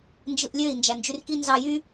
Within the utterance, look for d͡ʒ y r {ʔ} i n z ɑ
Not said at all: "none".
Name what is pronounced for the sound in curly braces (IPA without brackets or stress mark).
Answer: k